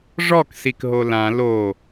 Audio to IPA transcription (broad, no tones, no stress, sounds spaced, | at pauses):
ʐ ɔ k s i k ɦ o l ã l o